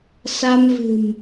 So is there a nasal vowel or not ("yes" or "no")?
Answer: no